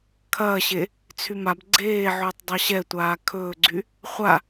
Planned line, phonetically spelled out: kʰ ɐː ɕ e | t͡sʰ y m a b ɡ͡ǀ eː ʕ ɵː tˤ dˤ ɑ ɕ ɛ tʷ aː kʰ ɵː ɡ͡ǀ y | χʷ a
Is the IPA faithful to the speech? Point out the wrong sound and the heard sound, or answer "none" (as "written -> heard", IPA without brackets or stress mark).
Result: none